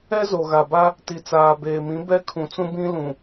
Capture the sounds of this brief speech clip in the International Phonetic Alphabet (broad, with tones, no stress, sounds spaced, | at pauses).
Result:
ɛ˦ z o˨ ɣ a˨ b a˦ | t i˨ t͡s aː˨ b eː˨ m ĩ˨˦ b ɛ˦ kʰ ũ˨ t͡s ũ˦ b ĩ˦ l ũ˨